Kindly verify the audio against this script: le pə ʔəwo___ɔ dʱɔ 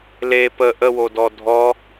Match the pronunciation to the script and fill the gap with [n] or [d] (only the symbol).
d